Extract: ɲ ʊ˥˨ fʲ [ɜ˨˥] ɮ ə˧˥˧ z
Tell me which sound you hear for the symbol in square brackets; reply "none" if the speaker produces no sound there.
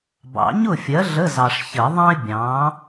ɜ˨˥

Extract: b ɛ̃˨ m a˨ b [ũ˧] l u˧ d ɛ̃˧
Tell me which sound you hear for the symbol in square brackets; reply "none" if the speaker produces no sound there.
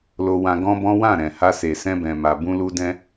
ũ˧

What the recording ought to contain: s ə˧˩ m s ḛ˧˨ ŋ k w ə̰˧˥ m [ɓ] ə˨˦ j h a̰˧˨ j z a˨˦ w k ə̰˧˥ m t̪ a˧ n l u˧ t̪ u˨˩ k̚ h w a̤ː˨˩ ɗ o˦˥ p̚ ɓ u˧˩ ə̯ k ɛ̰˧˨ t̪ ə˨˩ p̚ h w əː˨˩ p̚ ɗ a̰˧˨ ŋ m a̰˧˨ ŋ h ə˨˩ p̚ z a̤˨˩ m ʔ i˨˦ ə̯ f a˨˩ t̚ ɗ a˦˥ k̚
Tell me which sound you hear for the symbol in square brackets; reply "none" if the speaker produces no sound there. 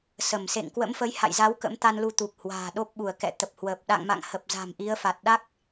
f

